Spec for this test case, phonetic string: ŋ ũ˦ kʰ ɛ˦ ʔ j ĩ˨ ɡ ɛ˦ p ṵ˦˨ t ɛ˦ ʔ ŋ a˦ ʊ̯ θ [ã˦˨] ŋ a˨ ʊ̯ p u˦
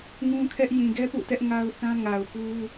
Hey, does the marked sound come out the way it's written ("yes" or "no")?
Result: no